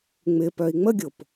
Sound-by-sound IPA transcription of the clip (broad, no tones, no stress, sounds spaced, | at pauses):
ŋ͡m ɪ p œ i̯ ŋ͡m ə ɡʲ o p